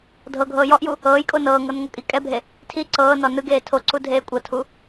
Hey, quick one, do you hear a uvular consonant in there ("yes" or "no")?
no